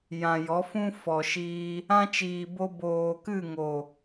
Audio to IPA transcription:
j ã˨ j ɔ˨˦ f ũ˦ f ɔ˨ ʃ iː˧ | ã˦ t͡ʃ iː˨ b o˧ b oː˨ k ɨ˦˨ ŋ o˨

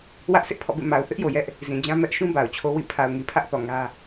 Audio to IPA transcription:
w ä˦ ʔ s ɪ˦ ʔ pʰ ɔ̰˦˨ b ḛ˦˨ m a˨ ʊ̯ θ ɪ˦ ʔ j o˨ j ɛ˦ ʔ | z ĩ˨ d͡ʑ ã˦ m ɛ˦ ʔ ʃ ũ˦ b a˨ ʊ̯ t͡ɕʰ o˦ w ḭ˦˨ pʰ a˨ ʊ̯ ŋ i˨ pʰ ä˦ ʔ θ ɔ˨ ŋ ä˦

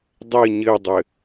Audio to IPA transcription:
dˤ ɘ ɲ ɘ dˤ ɘ

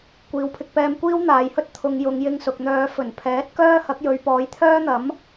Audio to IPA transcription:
kʷ iː˨ w pʰ ɪ˧ k̚ p ɛː˧ m kʷ iː˥ w n̪ aː˨˧ j h ɵ˥ t̚ t̪ʰ ʊ˨˧ ŋ j ʊ˨˧ ŋ j ɪ˧ ŋ s ʊ˨ k̚ n̪ œː˨˧ f ɵ˨˩ n pʰ ɛː˨˥ t̚ k œː˥ h ɐ˨˥ k̚ j ɵ˨˧ ɥ p ɔː˨˥ j t̪ʰ œː˥ n̪ ɐ˨˥ m

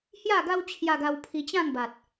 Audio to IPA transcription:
h j a˥˧ ɡ a˦ w t͡ɕʰ j a˧ ɡ a˧ w pʰ i˧ t͡ɕ ã˥˧ ŋ b a˨ t̚

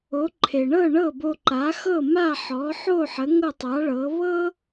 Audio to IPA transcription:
o˩˥ ǃʰ e˩ ɳ ɤ˥˩ ɳ ɤ˥˩ b o˧ ǃ a˩˥ x ɤ˥˩ m a˥˩ ħ ɔ˩˥ ħ o˥˩ ħ ə˩˥ ŋ ɤ˥˩ tˤ a˩˥ ɭ ɤ˩˥ β ɤ˥

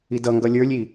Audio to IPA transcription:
i d ʌ ŋ ɡ ʌ lʲ ə˞ lʲ i

